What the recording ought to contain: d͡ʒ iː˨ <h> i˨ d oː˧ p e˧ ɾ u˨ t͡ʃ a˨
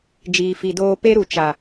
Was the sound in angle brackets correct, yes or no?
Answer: no